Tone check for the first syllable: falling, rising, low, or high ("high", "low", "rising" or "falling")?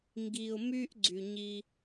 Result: low